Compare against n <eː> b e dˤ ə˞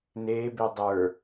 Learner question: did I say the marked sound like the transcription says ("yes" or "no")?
yes